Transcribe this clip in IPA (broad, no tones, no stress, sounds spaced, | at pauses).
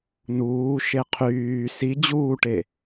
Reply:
n uː ʃ e qʰ yː s i d͡ʑ uː ʈ e